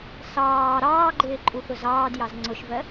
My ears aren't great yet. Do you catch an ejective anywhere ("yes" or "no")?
yes